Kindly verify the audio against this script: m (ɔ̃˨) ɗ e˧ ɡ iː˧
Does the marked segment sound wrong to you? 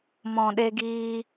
no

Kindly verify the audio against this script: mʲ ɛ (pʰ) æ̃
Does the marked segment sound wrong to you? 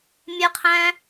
yes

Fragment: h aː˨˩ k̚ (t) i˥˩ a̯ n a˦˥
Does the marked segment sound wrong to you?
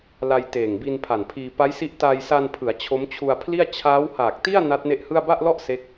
no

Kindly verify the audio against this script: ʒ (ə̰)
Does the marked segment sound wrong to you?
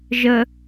yes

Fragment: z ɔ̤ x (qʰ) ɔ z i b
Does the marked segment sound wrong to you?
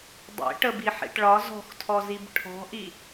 yes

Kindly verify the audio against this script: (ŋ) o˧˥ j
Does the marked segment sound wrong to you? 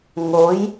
no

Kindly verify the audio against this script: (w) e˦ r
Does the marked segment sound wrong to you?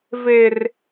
yes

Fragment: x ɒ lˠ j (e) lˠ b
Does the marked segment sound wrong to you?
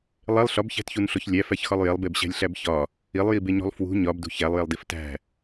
no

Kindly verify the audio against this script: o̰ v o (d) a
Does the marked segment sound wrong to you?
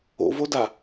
no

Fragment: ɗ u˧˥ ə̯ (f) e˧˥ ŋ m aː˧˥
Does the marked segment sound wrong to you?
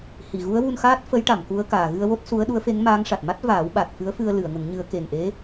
no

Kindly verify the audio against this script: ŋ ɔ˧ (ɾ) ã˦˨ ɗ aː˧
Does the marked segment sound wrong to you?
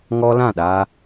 yes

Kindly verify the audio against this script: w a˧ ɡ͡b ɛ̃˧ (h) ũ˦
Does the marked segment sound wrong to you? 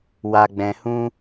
no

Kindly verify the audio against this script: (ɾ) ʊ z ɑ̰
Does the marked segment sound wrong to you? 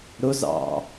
no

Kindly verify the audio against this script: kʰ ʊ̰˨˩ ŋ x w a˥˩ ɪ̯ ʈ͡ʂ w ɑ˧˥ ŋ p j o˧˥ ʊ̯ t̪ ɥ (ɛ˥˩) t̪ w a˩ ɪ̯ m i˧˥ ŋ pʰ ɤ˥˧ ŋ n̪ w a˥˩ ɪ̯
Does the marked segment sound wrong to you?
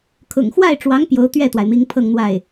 no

